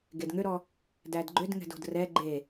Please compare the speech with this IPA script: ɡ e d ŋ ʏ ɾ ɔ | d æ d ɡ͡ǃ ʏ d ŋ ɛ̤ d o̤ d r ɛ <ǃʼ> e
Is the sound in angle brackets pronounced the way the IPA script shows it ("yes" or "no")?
no